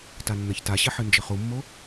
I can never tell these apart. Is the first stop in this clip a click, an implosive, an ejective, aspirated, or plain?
plain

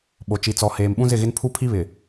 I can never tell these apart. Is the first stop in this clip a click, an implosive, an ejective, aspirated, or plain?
implosive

